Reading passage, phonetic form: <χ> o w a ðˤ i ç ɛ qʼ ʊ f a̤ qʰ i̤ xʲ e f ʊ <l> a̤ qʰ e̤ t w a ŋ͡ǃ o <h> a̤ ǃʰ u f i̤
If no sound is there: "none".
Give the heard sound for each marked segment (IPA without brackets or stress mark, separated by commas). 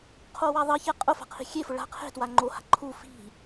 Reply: qʰ, ɭ, h